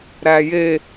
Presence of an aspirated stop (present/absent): absent